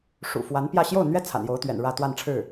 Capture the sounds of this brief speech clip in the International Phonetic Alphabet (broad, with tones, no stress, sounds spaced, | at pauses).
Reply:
ʂ ṵ˨˩ f w a˧˥ n p j ä˥˧ ɕ j o˥˩ ʊ̯ n̪ ɥ ɛ˥ t͡sʰ a̰˨˩ n j o˧˥ ʊ̯ t̪ ɥ ɛ̰˨˩ n ɻ ä˥˧ t̪ w a˥˧ n ʈ͡ʂʰ ɻ̩˥˩